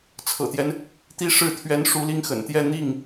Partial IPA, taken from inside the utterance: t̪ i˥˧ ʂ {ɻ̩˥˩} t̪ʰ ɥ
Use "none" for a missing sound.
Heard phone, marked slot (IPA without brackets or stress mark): ɻ̩˥˩